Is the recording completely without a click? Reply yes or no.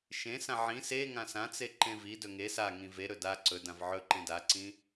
no